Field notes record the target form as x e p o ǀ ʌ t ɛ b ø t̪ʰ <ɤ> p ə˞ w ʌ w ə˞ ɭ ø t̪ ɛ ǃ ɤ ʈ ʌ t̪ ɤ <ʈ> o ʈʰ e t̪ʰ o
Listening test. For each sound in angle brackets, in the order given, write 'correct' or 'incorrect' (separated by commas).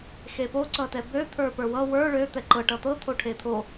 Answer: incorrect, incorrect